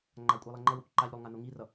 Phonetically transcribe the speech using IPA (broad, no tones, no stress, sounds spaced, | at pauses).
ŋ͡ǃ a kʷʼ ɛ lˠ ɛ ŋ͡ǃ ʌ w ʌ kʷ ǃ a ʎ ɾ o lˠ ŋ a n o ŋ i r ʌ